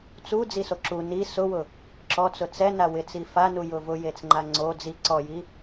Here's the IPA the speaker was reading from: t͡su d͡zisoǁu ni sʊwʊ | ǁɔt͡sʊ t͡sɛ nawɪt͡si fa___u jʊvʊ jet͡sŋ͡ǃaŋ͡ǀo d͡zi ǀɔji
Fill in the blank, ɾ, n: n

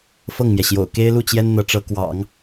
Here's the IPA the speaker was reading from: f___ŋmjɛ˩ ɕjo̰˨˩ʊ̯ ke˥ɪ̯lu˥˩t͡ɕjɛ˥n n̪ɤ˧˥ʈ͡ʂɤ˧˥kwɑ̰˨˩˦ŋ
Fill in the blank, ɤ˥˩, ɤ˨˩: ɤ˥˩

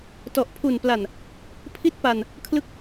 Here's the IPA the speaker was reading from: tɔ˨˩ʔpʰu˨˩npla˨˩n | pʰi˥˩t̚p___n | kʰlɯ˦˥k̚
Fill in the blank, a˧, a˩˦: a˧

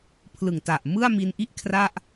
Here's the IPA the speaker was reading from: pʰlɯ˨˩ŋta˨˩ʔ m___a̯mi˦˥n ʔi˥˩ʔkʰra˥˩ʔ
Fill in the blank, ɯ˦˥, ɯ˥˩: ɯ˥˩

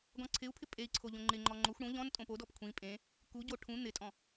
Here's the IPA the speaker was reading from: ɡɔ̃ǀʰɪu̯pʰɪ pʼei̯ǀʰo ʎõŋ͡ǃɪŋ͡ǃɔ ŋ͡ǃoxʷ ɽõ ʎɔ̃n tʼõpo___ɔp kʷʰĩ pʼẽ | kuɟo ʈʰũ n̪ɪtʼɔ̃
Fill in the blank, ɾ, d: d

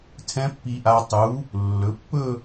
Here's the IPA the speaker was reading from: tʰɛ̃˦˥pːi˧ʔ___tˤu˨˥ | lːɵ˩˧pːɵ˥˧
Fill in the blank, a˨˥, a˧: a˧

